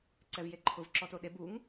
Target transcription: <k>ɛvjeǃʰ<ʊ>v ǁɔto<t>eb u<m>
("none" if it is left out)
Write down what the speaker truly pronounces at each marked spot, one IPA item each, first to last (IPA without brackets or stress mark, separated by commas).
ǀ, ʊ, ɗ, ŋ